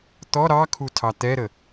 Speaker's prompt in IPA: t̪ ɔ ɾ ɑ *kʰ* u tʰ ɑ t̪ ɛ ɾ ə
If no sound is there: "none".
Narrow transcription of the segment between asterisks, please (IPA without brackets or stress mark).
kʰ